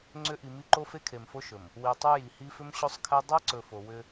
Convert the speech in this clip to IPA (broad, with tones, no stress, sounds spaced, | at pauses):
ŋ͡ǀ ʏ˦ ʔ i˨ m i˦ ǃ o˦ f e˦ kʰ e˨ m f o˦ ʃ ɵ˨ m | w i˨ tˤ u˦ j i˨ h i˦ f ʏ˦ m ɕ o˦ sˤ kʰ ɛ˦ dˤ ɛ˦ ǀ ɵ˨ f o˨ w ʏ˦